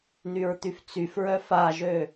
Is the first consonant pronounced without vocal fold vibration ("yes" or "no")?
no